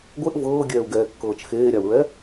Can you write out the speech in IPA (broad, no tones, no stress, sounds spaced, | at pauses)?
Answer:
ɡʷ e ʔ v ɤː ɡʲ ɛː u̯ ɡ ɛː kː ɤː t͡ʃ x eː ɾʲ a u̯ ɹ ɛ